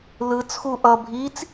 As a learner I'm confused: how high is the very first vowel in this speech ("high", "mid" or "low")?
high